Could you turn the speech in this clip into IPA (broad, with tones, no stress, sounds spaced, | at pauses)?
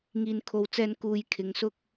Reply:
ŋ iː˨ n kʰ o˨ w t͡s ɛː˧ n k uː˧ j kʰ ɪ˨˧ ŋ s ʊ˥ k̚